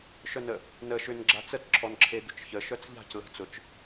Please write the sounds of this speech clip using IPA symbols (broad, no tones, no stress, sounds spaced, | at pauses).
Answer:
ʃ œ n ə | n ə ʃ ʏ n ɡ͡ǁ a t͡s ə t ǁʰ ɔ n ǁʰ e d̪ ʏ t͡ʃ ç ə ʃ œ t͡s ʎ a̤ c l ə̤ t͡s ʊ t͡ʃ